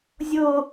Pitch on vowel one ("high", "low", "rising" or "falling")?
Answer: high